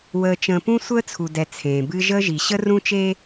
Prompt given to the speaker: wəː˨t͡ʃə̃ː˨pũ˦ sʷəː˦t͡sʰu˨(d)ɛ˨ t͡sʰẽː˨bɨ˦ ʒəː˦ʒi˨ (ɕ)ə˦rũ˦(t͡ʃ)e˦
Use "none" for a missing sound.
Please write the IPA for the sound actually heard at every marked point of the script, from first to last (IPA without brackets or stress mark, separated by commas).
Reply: d, ɕ, t͡ʃ